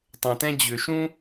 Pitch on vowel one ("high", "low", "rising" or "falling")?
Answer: low